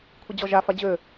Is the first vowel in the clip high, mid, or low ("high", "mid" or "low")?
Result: high